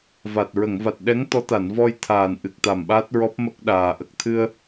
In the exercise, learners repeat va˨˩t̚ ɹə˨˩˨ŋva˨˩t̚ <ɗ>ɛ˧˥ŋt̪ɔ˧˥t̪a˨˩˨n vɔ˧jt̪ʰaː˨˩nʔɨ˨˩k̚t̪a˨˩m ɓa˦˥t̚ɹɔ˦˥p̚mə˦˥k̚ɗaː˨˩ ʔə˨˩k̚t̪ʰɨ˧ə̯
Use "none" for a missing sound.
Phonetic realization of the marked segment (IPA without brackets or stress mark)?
ɗ